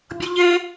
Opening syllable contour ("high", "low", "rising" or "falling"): high